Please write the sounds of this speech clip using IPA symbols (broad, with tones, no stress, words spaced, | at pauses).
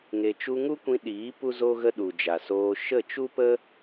ŋe˨t͡ʃu˧ŋu˦kʷĩ˧ ɗiː˨˦ pu˦zo˦ɣə˦ ɗu˨d͡ʒa˨soː˧ ʃə˦˨t͡ʃu˦pə˦